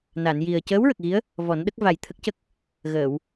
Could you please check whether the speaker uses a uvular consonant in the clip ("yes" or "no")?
no